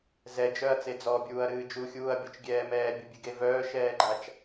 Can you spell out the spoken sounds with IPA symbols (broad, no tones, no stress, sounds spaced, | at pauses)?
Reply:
z ɛ d͡ʒ œ ɐ̯ t͡s e d͡z ɔ bʲ uː ɐ̯ ɾ ɨː d͡ʒ u xʲ uː ɐ̯ bʲ o t͡ʃ ɡʲ ɛː m ɛː bʲ o bʲ ɨ ɡ e v œː ʃ ɛː ɡ͡ǃ a t͡ʃ